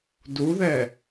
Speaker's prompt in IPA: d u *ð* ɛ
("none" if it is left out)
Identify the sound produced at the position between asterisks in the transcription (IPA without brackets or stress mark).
ð